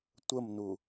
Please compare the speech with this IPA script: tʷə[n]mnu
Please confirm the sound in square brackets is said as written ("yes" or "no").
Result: no